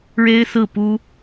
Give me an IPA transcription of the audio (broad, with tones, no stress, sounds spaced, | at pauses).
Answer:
ɻ e˥ ɪ̯ s ɹ̩˥˩ p u˥